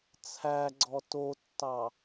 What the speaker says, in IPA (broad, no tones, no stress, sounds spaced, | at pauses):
t͡sʰ æ ɡ͡ǀ ɔ t o tː ɑ